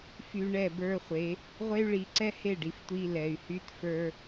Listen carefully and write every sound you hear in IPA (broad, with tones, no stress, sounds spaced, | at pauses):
f y˨ ɳ ɛ˦˨ b ə˞˦ χʷ e˨˦ | ʁʷ e˦ y̯ ɭ i˨˦ ǀ ɛ˦ h e˦˨ ɖ i˨ f tʷ i˦ l ɛ˨ y̯ h y˦ t f ə˞˦